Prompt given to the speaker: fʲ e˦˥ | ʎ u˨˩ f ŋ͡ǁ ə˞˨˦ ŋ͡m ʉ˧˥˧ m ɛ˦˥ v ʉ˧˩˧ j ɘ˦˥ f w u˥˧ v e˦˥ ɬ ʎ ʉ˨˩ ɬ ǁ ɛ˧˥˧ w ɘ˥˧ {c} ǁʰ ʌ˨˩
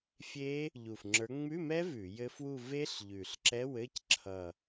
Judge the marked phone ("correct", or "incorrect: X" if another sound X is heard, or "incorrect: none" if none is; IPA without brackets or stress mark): correct